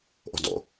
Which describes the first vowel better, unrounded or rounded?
rounded